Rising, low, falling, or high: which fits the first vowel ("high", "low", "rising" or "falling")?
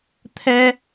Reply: high